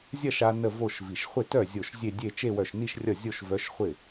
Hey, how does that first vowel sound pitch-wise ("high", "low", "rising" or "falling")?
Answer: falling